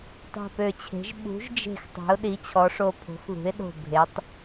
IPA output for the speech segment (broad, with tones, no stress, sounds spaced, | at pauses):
tˤ e̤˧˩ p ø˧˩ t͡ɕʰ e̤˩˥ ʒ ɓ ṳ˩˥ ʒ d͡ʒ e̤˧˩ x tˤ ɛ̤˩˥ ʊ̯ ɗ i˩˥ t͡ɕʰ ɔ˩˥ ʂ o˧˩ pʰ o̤˩˥ x ð ṳ˩˥ ɪ̯ ɗ o̤˧˩ bʱ e˩˥ tˤ